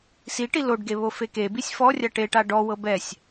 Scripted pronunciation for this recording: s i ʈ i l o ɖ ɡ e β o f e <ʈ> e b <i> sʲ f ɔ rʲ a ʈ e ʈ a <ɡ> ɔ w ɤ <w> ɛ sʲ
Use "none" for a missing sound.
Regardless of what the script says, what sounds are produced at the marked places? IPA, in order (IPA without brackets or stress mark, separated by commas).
k, i, ɖ, b